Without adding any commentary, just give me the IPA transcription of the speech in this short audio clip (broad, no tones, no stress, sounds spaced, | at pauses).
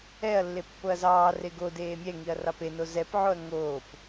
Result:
ɛ ɐ̯ lː e pː o ɐ̯ z ɑː r e ɡ o d eː mʲ ɛ ŋ i ɐ̯ r ɑ p e n o z ɛ p ʕ o ɐ̯ ŋ oː p